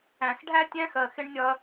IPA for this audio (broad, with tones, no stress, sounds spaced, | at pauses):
æ̃˨ x ɖʱ æ˦ tʲ æ̃˦ x ɜ˨ x ɪ˦ ɳ nʲ ɒ˦ ɐ̯